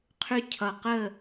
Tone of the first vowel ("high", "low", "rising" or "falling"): high